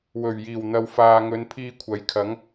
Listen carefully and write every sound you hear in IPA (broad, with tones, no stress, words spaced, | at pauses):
wɵ˨˩ɥjiː˨˩w n̪ɐ˨wfaː˨ŋɵ˨˧n pʰiː˧kʷʰɐ˨˥jkʰɐ˨˥ŋ